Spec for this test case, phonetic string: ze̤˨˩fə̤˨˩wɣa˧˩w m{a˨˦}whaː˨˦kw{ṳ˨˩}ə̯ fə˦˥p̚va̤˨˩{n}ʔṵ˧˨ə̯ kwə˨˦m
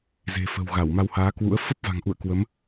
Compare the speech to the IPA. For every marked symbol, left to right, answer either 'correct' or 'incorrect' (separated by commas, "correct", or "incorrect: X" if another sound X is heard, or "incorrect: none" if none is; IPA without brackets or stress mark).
incorrect: a˧, incorrect: ṵ˧˥, incorrect: ŋ